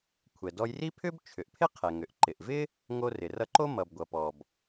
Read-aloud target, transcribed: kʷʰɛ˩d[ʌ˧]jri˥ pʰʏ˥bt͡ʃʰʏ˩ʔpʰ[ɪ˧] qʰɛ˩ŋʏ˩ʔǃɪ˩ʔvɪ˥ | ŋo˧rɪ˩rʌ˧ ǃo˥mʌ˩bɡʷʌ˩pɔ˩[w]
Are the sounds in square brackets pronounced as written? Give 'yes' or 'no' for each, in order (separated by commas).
no, no, no